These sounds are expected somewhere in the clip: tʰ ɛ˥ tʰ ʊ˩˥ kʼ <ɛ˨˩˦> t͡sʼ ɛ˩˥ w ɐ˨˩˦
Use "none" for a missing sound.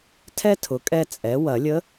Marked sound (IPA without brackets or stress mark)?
ɛ˥˧